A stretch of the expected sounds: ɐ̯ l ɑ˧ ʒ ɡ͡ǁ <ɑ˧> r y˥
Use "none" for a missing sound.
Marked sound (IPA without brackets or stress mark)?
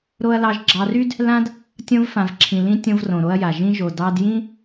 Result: ɑ˧